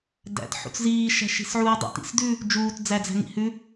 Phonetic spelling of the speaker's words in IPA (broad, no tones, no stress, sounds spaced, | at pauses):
d æ̰ t ħ ṵ t͡s z iː ʃ æ̤ ʃ i̤ s ʕ uː dˤ ṵ t ḭ s d ʉ | d͡ʒ uː t d͡z æ d͡z æ̤ ŋ ḭ h ʉ